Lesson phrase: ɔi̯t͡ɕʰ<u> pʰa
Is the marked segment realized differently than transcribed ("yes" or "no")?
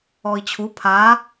no